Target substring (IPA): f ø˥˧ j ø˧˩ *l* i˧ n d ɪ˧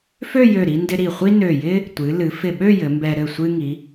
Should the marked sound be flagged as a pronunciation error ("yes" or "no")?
yes